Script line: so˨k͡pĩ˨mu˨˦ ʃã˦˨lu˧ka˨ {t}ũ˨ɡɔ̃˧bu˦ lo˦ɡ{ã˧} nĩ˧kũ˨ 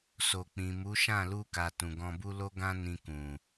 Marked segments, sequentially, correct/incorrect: correct, incorrect: ã˦

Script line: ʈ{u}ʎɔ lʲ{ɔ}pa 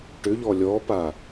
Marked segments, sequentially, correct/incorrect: incorrect: ʏ, correct

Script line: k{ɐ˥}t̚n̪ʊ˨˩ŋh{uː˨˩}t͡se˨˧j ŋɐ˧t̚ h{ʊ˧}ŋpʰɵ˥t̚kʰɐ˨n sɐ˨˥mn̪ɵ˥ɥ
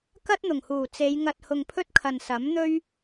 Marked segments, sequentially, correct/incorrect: correct, correct, correct

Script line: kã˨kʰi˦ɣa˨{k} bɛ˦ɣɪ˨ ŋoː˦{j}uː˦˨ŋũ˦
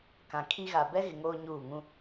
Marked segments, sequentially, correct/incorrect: incorrect: none, incorrect: ɲ

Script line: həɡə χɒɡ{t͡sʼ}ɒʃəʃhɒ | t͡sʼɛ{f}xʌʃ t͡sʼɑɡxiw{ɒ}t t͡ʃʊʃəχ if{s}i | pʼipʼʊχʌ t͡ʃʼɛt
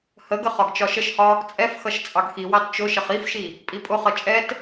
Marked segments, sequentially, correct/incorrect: incorrect: t͡ʃ, correct, incorrect: ɑ, incorrect: ʃ

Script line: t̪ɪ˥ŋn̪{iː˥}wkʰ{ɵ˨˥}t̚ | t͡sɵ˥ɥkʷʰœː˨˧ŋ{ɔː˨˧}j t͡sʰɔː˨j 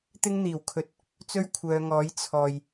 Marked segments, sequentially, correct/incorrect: incorrect: iː˨˩, correct, incorrect: ɔː˨˥

